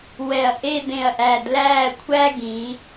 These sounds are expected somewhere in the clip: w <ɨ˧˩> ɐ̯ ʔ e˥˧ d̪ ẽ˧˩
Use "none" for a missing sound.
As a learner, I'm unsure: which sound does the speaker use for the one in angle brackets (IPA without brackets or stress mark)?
ɛ˧˩